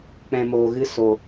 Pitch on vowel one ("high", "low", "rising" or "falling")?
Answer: low